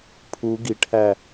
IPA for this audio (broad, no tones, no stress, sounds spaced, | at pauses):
pʰ u ɡ i ʈ h æ